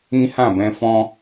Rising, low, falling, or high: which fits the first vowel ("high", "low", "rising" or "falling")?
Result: high